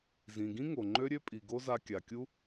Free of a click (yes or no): no